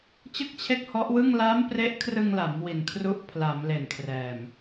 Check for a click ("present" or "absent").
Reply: absent